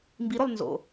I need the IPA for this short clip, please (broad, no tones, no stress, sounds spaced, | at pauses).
m b i ɾ o lˠ n z o̰